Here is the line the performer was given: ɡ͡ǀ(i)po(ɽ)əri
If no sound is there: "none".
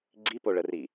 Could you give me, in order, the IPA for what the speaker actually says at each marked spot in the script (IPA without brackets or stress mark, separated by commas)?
i, ɭ